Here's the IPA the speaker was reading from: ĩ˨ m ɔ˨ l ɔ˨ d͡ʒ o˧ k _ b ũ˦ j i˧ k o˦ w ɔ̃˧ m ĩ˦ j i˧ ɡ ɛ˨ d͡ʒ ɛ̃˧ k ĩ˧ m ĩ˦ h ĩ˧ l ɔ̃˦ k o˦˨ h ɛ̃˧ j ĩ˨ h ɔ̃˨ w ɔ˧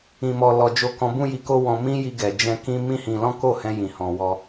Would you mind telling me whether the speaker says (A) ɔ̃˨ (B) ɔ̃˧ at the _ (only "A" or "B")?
B